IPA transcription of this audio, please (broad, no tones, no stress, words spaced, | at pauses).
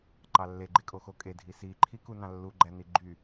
ǃɑlːeɡ͡ǃekʼo xokʼedʱi siǃʰiku nɑ̃lːuɡ͡ǃæ niɡ͡ǃy